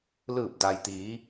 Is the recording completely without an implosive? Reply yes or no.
yes